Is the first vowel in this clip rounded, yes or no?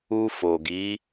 yes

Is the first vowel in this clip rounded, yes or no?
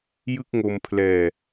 no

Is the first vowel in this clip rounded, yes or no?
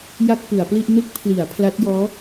no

